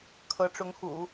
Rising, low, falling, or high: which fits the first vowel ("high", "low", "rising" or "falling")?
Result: rising